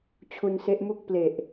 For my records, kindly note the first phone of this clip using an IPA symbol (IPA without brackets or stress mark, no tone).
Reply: t͡ɕʰ